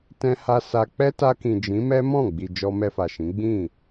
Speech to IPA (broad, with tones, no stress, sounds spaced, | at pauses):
t ɛ̃˦ h a˦ s a˧ k͡p ɛ˦ t a˧ k ĩ˨ d͡ʒ ĩ˨˦ m ɛ˦ m ɔ̃˦˨ ɡ͡b i˨ d͡ʒ ɔ˧ m ɛ˧ f a˨ ʃ ĩ˨˦ ɡ͡b ĩ˦˨